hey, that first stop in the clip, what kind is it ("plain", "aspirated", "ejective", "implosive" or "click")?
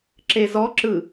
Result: click